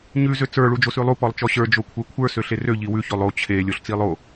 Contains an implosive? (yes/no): no